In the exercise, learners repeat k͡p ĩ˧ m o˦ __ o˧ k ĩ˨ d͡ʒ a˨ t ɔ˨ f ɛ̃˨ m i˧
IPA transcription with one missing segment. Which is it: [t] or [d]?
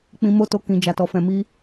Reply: t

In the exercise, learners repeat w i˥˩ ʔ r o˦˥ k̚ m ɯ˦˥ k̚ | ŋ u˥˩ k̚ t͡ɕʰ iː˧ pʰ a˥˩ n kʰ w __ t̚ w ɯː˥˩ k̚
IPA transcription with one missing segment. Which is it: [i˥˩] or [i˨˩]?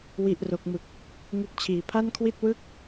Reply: i˥˩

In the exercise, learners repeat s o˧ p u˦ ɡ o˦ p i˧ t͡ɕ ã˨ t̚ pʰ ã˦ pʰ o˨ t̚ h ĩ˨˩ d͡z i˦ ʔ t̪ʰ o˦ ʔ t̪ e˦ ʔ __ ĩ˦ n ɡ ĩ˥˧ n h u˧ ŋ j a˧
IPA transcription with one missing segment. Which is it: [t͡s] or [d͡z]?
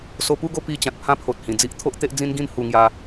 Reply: d͡z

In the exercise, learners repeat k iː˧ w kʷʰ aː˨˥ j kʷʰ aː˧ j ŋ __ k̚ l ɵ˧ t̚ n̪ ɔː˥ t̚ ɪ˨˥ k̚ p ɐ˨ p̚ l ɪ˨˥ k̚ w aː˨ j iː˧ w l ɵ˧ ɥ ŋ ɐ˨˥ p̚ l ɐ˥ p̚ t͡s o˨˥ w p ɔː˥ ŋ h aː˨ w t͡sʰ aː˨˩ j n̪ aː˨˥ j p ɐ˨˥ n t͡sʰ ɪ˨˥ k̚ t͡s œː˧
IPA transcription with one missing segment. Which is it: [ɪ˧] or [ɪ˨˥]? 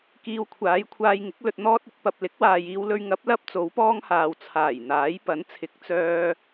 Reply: ɪ˨˥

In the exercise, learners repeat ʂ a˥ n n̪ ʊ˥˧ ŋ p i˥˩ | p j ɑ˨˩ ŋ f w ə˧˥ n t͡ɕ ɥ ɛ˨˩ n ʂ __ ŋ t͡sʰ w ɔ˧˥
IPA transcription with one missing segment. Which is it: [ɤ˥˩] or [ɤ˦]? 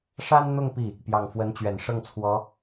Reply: ɤ˥˩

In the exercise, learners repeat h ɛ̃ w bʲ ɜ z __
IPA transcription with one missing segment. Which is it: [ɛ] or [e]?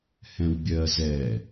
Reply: ɛ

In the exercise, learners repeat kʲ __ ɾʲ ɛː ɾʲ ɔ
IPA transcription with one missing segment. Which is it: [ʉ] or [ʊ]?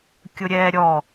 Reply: ʊ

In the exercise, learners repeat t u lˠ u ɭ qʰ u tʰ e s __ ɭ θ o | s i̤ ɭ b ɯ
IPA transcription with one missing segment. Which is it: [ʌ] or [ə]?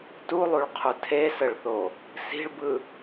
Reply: ə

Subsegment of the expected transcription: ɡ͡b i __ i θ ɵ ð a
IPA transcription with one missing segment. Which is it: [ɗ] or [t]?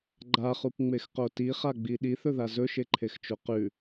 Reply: ɗ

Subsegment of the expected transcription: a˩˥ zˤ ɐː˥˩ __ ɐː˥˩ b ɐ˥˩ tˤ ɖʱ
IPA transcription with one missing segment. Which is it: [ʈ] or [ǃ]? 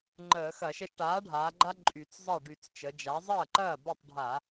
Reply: ǃ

